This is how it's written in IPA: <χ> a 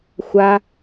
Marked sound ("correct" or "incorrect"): incorrect